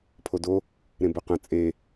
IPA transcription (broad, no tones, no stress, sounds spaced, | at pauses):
pʰ o d o | ɾ ẽ b ɵ q ə̃ t͡sʼ e